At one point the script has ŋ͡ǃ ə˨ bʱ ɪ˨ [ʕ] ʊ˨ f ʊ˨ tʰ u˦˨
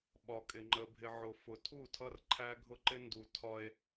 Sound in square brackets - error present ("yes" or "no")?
no